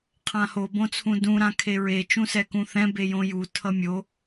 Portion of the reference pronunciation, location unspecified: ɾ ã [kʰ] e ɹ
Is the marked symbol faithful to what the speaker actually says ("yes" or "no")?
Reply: yes